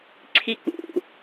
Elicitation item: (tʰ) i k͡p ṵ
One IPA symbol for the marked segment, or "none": ǀʰ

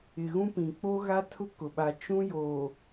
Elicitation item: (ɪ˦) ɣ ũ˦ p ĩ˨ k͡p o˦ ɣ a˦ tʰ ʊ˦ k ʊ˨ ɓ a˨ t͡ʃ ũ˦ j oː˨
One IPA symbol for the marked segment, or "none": ɪ˨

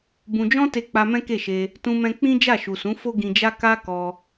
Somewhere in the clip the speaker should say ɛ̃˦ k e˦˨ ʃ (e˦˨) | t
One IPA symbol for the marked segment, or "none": e˧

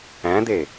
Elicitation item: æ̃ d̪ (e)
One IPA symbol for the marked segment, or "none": e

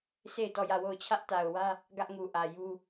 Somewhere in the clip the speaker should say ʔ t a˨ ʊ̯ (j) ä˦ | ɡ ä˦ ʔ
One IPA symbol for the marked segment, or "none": w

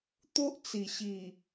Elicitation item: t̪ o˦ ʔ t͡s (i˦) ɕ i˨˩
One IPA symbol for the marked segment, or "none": i˨˩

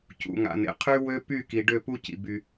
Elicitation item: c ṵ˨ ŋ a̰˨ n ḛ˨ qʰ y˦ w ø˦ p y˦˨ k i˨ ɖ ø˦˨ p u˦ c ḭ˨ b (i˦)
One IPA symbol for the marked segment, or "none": y˦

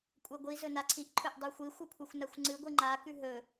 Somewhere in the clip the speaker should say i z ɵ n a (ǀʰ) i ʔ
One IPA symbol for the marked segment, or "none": ǀʰ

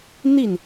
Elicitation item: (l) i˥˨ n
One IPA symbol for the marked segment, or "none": n̪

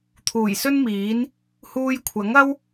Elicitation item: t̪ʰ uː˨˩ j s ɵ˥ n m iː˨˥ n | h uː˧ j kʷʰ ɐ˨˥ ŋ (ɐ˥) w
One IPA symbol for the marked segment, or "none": ɐ˥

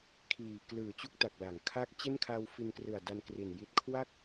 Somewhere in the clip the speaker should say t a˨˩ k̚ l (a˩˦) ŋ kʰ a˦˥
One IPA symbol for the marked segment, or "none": a˩˦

